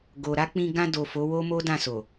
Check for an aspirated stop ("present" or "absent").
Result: absent